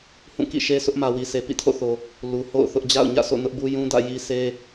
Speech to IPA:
hũ˦˨kḭ˦˨ʃe˦sʊ˦ʔ mä˨wi˨se˨ pḭ˦˨tʰo̰˦˨θo˨ | lu˨ho̰˦˨ʊ̯θʊ˦ʔ d͡ʑa̰˦˨ʊ̯ɲä̰˦˨sʰo̰˦˨ nʊ˦ʔbu˦jũ˦dä̰˦˨ ji˦ se˦

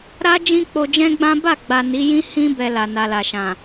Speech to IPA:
ɾa˦ d͡ʒĩ˦k͡po˧d͡ʒɛ̃˦ɡ͡bã˦ ba˦˨ɡ͡ba˨ ni˨˦jĩ˦ hĩ˦ bɛ˧la˨ na˨la˨ʃã˨

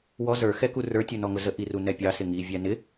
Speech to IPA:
wɔ zə˞ xɛkurə˞ tʲunɔŋʊzə ʔirunɛpʲɑ sɪŋi vʲænɪ

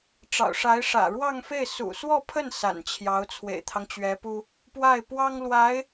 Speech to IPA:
ʈ͡ʂɑ̰˨˩ʊ̯ʂa˧˥ɪ̯ ʂä̰˨˩ɻwɑ˥˧ŋfe˥˩ɪ̯ sṵ˨˩swɔ˥˧pʰə˥˩n sa̰˨˩nt͡ɕʰjɑ˧˥ʊ̯ t͡sʰwḛ˨˩ɪ̯t̪ʰɑ˦ŋt͡ɕɥɛ˧˥pu˥ | pwa˥˩ɪ̯ pwɑ˥ŋlwa˧˥ɪ̯

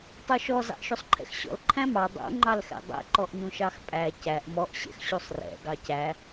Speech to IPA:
tˤuʃɔ zɑ̰ʔʃusˤǃʰɛ̰xɕɔ̰l ǃʰæ̃mɑ dˤṵ ŋ͡ǃɑlxɛ̰dˤɛ̰ ǃɔʔɲũʃɑxpʼæ cæʔ mɔʔ ɕɛ̰xɕusˤrɛ̰ ɡɑcæ

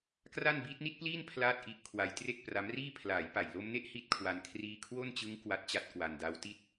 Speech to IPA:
kra˥˩n biː˦˥t̚ni˦˥t̚pliː˥˩n pʰlaː˥˩t̚ʔi˦˥ʔkʰwa˧j tre˥˩k̚pra˦˥mriː˥˩ pʰlaː˩˦jpa˨˩jlo˧mne˦˥ʔ hi˦˥t̚kʰwa˧n kʰriː˧kʰwo˥˩nt͡ɕɯ˦˥ŋ kwa˦˥t̚t͡ɕa˦˥t̚kwa˧nda˦˥w ti˥˩t̚

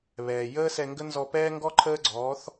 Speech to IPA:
βɛː˩jəː˥sɛ˧ŋɡə˥ nzɔ˧ pɛː˥ŋɡɔ˥ ǃʰəː˥ɡ͡ǀɔː˩˥θ

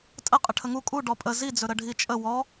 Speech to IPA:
tʼəqʼə ʈʰəŋu kʼu ɖɔpʼə zid͡zɵɾə ɖʱit͡ʃʼə wɔ

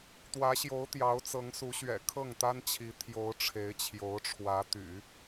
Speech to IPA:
t̪wä˧˥ɕjo˧˥ʊ̯ t̪jɑ˧˥ʊ̯t͡sɤ˧˥ŋsu˧˥ ɕɥɛ̰˨˩kʰɤ˥˩ŋt̪a˥nt͡ɕʰi˧˥ t̪ʰjo˧˥ʊ̯ʈ͡ʂʰe˧˥ɪ̯t͡ɕʰjo˧˥ʊ̯ʈ͡ʂʰwä˧˥ t̪y̰˨˩˦

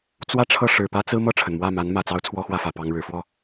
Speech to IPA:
t͡swä˥˧ʈ͡ʂʰɤ˥˩ ʂɻ̩˨˩pä˥t͡sɹ̩˥ mɤ˥˩ʈ͡ʂʰə˩nmwä˥˩ ma˧˥n mä˨˩t͡sɑ˧˥ʊ̯ t͡sʰwɔ˥xwä˥˩fä˨˩ pɑ˥ŋɻɻ̩˧˥ fwɔ˥˩

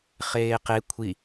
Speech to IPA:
χeːqe kʷʰi

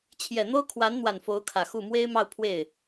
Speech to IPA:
t͡ɕʰjɛ˨˩n̪o˥ʊ̯ kʰwa˧˥nn̪wa˨˩n fo˧˥ʊ̯kʰä˨˩xu˥˩ mwe˥ɪ̯mɑ˥˧ʊ̯ pʰwe˥˩ɪ̯

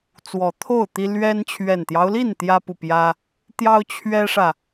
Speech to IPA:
t͡swɔ˨˩t̪ʰo˥˨ʊ̯ t̪i˦ lɥɛ˦n t͡ɕʰɥɛ˨˩nt̪jɑ˦ʊ̯li˥˨n t̪jä˦pu˨ pjä˦ | t̪jɑ˦ʊ̯t͡ɕʰɥɛ˦ʂä˨

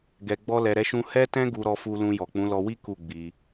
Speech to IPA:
ɡɛ˧ɡ͡bɔ˦lɛ˧ ɾɛ˦ʃũ˦ hɛ˦tɛ̃˦ ɡu˧ɾɔ˧fu˧ lũ˧jɔ˨k͡pũ˨˦lɔ˧ wi˦ ku˦˨ɡ͡bi˧

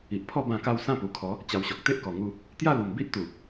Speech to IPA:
i˨ʔpʰɔ˥˧ bã˥˧ka˥˧w sã˥˧pu˨˩kʰɔ˨˦ | t͡ɕa˧wɕɔ˨k̚ t̪e˦ʔkɔ˨˩ŋu˧ | t̪ja˥˧ lu˨˩mbi˦ʔ t̪u˨˩

